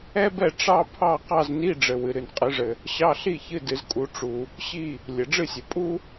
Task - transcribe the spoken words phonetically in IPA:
ɛ˥bɛ˥˨ ʈ͡ʂɑ˥ pʰɑ˥˨ qɑ˥˨zni˧˥˧ɖ͡ʐɘ˩ wɨ˩ ɾɨ˩nqʼɨ˩˧ʐɘ˩ | ɕɑ˧˥˧ɬi˥˨çɨ˧˥˧ dɨ˩˧zkʼu˩˧ ʈ͡ʂu˩ | ɕi˥˨ | lʲɘ˩ɖ͡ʐɨ˥˨sʲɘ˩ pʼu˥

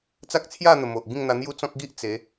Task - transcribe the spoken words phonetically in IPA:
t͡sa˦k̚t͡sʰja˥˧n̪ə˨˩ mo˨ʔ ɡĩ˥˧ŋn̪a˧n̪ju˦ t͡sɔ̃˦k̚ɡi˦ʔ t͡se˨˦

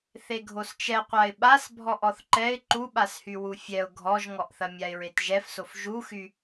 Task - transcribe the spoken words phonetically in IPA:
θeɡʱost͡ʃɛqʷaɪ̯ ɓas bʱɔʔɔθǃɛɪ̯ ǃuɓashy wufʲɛʊ̯ ɡʱɔʒŋɔʔθɐ mʲaɪ̯ɹetʒɛfsof ʒuxy

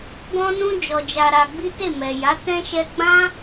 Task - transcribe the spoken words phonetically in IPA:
ɡɔ̃˧nũ˧ d͡ʒɔ˧d͡ʒa˧ɾa˧ɡ͡bi˦ te˦˨mɛ˨ja˨˦ tɛ̃˧ʃɛ˧ɡ͡bã˦

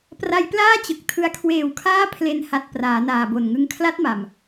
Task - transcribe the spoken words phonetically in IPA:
pra˧jplaː˥˩ t͡ɕɯ˨˩k̚tʰɯ˧a̯ kʰweː˨˩wkʰaː˦˥ pʰle˧nha˨˩t̚ praː˩˦naː˨˩bo˨˩nŋɯ˦˥ŋ kʰla˦˥t̚ma˨˩m

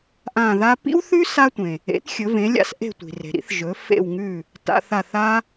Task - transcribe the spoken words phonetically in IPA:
ʔã˦˨ða˥ pḭ˥wθʉ˥ sa˥tʷẽ˨ | ḛ˨˥t xʲɵ˨˥vẽ˨˥lʲa̰˥s ʔe̤˦˨tʷi̤˨re̤˨ɾḭ˥θ ʒɵ˨˥ fḛ˦˨wŋʉ˦˨ | ta̰˧˥˧θa˦˨θa˥

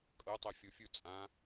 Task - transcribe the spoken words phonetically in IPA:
kʼɤtˤɛ fʲofʲu t͡sʼã

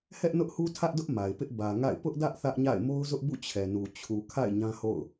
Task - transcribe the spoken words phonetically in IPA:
hɛ˦ʔnʊ˦ʔhu˦ tʰä˦ʔdʊ˦ʔ ma˨ɪ̯pɪ˦ʔ bä˨ ŋa̰˦˨ɪ̯ pʊ˦ʔdä˦ʔ θä˦ʔɲa̰˦˨ɪ̯ mo˦ʊ̯zʊ˦ʔbṵ˦˨ t͡ɕʰɛ˨nu˨ t͡ɕʰu˨kʰa̰˦˨ɪ̯ ɲã˦ho̰˦˨ʊ̯

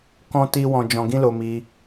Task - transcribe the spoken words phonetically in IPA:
kɔ̃˦ti˦wɔ̃˧ d͡ʒɔ̃˧ɡĩ˦lo˧ mi˧

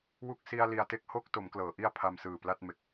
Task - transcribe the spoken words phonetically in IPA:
wu˥˩k̚ si˧a̯ li˧a̯te˥˩k̚ ho˥˩k̚to˩˦m klɤː˩˦ʔi˥˩a̯pʰa˧msɯː˨˩ pla˥˩t̚me˨˩k̚

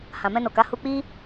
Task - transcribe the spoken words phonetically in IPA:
hã˨mɛ̃˧no˨ka˨˦ hu˧k͡pi˦

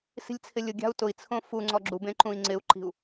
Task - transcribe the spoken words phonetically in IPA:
si̤lʲt͡sʰɪlʲʊɡʲa̤u̯ tʊi̯t͡sʰõ fu ŋ͡ǀɔɡ͡ǁubẽ ǃũi̯ŋ͡ǀɪu̯ǃi̤u̯

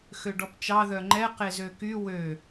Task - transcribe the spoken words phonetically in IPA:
xøɖɔpt͡ʃɑ ðœŋ͡ǃɛ qezøky wø

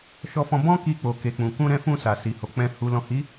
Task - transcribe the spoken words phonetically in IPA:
ʃɔ˧fɔ̃˧ bɔ̃˦ki˧k͡po˨ ke˨k͡pũ˨ kũ˧ɾɛ̃˧fũ˧ sa˨si˨ho˨ k͡pɛ̃˨ hu˨lɔ̃˨hi˨˦

